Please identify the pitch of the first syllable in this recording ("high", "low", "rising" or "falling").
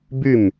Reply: falling